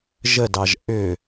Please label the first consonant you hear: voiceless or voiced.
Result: voiced